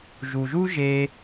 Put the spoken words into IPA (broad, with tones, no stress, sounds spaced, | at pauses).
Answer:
ʒ u˧ ʒ u˥ ʒ e˥